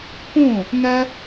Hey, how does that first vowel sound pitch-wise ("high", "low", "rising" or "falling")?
falling